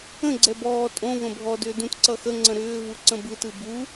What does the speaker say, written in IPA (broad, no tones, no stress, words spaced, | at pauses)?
ə̃ ɡ͡ǀɛbɔː tʼõ və̃bʱɔ dʏːdũt ǀʌxə ŋ͡ǀə̃ɾʏː vuǀə̃bɯt ɯbu